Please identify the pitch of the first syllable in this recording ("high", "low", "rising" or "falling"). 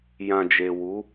low